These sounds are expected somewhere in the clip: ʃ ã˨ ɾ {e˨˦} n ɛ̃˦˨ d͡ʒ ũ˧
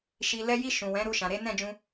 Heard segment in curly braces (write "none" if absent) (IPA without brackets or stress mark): e˨˦